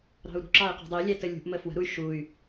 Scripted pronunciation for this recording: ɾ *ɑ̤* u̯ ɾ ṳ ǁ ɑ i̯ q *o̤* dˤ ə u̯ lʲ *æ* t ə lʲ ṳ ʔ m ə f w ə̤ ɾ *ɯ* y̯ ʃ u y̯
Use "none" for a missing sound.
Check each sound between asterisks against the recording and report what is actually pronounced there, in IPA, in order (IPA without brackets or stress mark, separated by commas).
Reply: ɑ̤, ṳ, æ, u